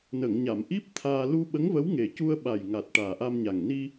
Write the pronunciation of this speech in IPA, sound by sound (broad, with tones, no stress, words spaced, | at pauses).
nə˨˩˨ŋ ɲa˨˩˨mʔi˦˥p̚ t̪ʰaː˧ lu˧ ɓə˧˥ŋvə˧˥wŋe˨˩cu˧ə̯ ɓa˨˩jŋa˨˩t̚ ʈaː˨˩ʔa˧mɲa˨˩ŋni˧